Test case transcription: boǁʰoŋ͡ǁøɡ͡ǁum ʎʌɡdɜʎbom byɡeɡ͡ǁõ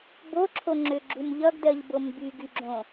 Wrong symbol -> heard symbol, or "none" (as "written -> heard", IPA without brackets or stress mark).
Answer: e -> y